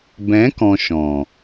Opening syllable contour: rising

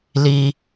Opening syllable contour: high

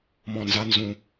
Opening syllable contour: low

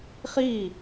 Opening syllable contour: falling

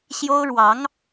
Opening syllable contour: high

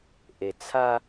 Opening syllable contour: low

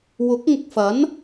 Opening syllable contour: rising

